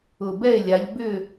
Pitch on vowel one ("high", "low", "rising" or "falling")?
low